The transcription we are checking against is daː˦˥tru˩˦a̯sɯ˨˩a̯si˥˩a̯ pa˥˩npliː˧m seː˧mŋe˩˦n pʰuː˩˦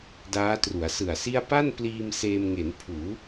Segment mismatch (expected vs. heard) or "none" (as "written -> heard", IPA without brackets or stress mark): none